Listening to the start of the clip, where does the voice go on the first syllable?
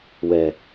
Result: low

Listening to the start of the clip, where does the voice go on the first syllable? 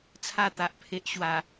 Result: falling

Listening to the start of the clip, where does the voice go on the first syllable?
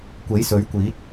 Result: rising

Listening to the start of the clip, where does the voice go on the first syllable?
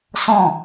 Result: falling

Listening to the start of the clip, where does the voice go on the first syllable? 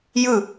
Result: falling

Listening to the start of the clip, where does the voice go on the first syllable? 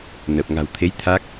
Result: low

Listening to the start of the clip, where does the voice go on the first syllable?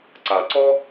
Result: low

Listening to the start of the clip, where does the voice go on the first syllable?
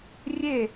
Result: falling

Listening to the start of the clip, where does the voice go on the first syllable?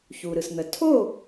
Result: low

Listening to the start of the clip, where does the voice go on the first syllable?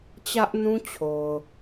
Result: high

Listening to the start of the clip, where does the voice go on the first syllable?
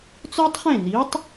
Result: high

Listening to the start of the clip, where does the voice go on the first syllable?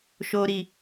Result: high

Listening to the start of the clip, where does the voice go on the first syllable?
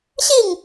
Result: falling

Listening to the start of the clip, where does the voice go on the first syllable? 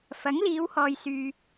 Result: rising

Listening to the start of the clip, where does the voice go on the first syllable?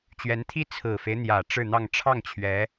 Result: rising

